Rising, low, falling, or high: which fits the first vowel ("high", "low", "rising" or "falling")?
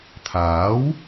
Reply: rising